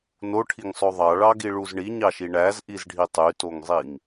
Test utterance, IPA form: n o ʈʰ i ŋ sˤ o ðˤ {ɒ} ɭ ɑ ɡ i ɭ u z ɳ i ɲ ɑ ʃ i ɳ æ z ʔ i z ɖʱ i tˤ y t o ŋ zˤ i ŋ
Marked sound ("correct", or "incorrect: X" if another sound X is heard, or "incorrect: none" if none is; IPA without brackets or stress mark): incorrect: ɑ